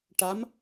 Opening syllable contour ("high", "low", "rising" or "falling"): rising